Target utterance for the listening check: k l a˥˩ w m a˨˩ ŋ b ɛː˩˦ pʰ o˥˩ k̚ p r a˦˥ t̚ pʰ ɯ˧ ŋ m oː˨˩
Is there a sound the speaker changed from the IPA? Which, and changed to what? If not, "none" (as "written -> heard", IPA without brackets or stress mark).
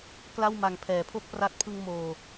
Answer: b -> pʰ